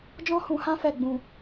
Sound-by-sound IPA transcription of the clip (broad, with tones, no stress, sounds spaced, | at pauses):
d͡ʒ ɔ̃˦ h ũ˧ h ã˦ f ɛ˦˨ ɡ͡b ũ˧